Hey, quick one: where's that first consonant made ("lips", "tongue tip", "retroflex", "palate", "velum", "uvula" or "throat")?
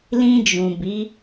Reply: tongue tip